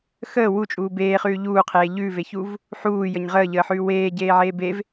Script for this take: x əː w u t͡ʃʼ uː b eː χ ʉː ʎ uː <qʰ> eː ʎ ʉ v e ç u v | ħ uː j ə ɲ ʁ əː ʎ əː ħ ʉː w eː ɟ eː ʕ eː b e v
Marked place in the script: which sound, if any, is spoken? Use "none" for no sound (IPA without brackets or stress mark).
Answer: qʰ